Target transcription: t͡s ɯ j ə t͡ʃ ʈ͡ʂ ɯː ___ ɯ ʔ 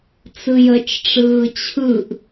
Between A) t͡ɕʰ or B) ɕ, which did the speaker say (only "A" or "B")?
A